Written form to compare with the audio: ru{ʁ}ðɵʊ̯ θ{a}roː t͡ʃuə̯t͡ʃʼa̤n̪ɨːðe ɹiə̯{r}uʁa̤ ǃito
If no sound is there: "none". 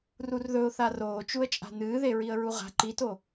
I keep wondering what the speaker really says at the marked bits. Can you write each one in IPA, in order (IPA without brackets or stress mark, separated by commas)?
r, a, ɹ